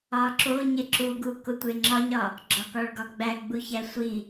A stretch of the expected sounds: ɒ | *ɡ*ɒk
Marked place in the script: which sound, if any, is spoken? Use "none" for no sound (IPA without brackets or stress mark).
ɡ͡ǁ